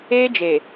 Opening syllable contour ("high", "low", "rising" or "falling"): high